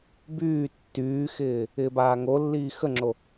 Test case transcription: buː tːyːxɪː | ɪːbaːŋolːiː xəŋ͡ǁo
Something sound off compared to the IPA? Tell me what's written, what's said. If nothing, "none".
uː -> yː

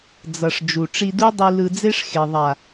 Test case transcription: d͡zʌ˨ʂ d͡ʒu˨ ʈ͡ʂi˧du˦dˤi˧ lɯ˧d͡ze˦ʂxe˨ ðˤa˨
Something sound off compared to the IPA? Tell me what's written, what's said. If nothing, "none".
none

